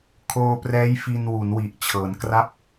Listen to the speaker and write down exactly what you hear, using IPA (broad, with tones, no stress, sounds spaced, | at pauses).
kʰ oː˧ p r ɛː˦˥ j f i˧ n w u˩˦ n w i˨˩ ʔ t͡ɕʰ ɤː˩˦ n k r a˥˩ p̚